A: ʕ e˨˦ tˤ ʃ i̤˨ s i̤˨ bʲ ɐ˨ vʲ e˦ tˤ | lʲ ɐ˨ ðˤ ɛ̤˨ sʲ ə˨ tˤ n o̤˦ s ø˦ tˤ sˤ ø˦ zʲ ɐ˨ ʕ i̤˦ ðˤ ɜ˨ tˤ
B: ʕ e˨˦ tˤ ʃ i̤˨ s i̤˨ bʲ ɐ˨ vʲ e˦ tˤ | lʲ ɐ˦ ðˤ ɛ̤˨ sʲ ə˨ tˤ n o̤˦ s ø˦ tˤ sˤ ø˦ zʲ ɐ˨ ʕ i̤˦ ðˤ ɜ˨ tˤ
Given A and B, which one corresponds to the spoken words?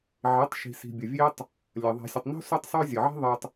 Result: A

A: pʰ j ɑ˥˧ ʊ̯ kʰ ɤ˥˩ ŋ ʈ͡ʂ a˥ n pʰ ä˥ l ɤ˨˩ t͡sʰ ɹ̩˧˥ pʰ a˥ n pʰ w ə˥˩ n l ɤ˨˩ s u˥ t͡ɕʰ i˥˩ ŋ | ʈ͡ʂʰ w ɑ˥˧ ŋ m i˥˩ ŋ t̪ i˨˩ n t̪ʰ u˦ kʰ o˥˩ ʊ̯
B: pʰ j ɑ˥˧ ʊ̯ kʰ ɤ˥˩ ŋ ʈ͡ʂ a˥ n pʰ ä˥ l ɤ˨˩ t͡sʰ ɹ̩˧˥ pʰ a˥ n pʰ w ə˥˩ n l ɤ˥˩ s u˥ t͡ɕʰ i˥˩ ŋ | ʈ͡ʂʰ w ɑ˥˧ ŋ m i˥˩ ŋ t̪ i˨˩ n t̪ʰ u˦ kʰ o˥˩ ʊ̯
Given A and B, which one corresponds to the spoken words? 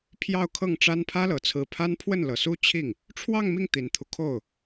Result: A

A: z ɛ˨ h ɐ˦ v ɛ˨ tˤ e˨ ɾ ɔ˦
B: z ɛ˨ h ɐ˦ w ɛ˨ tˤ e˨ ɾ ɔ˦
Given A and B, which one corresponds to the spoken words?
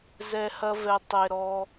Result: A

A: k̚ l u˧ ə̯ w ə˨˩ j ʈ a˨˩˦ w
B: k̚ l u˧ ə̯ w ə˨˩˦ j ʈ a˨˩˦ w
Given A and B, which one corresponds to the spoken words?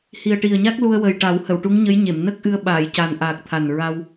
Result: A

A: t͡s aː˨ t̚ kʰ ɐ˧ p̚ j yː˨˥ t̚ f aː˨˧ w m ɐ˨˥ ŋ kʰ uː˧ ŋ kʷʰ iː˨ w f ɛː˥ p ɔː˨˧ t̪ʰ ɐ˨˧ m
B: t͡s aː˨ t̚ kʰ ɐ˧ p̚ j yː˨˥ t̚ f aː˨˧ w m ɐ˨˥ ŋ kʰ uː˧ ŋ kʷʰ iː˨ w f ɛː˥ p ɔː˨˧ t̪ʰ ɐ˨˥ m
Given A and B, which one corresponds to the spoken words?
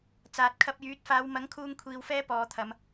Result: A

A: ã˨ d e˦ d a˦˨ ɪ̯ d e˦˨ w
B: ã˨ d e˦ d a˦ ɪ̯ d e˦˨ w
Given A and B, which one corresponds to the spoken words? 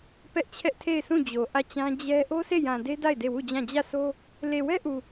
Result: A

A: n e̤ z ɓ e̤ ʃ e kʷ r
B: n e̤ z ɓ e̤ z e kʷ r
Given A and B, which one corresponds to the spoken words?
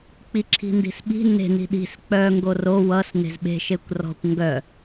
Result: A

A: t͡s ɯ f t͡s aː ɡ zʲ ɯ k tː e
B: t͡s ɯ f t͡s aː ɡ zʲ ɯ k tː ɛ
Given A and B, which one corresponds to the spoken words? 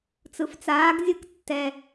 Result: B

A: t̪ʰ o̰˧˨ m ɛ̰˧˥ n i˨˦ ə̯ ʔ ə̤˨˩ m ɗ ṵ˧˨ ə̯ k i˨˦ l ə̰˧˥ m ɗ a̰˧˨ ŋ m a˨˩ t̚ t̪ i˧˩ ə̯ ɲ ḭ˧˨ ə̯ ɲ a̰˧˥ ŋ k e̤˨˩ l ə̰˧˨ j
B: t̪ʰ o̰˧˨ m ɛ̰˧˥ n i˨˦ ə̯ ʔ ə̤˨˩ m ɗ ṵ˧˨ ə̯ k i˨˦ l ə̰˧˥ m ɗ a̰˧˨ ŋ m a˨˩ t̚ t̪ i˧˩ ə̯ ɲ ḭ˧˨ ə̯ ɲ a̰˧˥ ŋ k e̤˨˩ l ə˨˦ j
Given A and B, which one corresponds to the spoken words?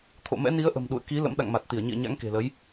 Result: B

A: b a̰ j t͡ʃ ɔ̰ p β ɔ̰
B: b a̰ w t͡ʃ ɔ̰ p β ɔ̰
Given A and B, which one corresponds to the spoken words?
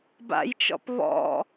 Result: A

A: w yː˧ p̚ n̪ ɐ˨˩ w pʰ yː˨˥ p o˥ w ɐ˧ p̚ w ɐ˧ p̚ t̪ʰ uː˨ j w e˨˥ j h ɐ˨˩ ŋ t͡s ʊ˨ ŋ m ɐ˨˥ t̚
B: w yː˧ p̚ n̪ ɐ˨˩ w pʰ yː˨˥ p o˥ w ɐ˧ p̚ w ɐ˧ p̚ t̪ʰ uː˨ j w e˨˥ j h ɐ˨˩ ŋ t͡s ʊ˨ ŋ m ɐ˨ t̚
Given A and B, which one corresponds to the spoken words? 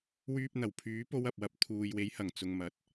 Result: A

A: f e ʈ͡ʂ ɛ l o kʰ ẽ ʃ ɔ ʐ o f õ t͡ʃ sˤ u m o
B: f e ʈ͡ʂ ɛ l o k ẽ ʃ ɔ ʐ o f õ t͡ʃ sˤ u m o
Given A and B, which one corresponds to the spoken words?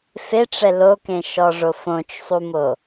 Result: B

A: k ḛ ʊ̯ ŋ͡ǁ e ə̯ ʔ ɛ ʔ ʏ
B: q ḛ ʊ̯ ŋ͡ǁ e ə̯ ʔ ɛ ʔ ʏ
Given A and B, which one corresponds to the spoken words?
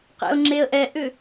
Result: B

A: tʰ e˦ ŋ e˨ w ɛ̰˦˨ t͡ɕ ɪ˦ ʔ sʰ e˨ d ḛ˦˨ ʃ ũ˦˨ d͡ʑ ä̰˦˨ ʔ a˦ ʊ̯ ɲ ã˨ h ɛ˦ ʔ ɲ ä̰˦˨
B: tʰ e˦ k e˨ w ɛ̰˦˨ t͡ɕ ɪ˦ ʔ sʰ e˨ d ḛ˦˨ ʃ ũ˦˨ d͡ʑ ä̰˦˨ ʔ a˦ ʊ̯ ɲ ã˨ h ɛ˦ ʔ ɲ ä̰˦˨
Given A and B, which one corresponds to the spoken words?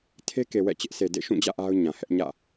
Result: B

